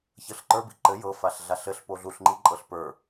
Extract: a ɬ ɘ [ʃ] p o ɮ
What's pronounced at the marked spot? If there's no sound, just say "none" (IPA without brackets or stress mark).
ɬ